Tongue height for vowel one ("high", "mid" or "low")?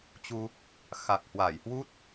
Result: high